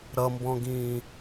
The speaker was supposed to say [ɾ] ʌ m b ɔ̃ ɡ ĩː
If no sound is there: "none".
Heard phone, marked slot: ɾ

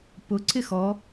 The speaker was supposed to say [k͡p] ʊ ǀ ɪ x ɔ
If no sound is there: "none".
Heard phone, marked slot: p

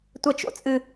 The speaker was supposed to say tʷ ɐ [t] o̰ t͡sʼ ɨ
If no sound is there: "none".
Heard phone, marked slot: t͡ʃ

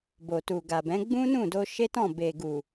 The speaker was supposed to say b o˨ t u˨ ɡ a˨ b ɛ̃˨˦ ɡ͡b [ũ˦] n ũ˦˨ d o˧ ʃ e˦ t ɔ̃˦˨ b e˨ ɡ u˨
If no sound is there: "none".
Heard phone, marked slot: ũ˦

